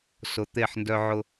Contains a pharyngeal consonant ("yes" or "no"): yes